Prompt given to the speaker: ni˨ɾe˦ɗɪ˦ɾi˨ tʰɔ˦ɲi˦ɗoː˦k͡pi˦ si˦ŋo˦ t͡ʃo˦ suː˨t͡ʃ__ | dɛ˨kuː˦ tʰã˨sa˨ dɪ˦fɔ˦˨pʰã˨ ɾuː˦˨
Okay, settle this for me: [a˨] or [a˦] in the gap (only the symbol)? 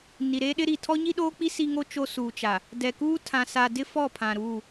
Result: a˨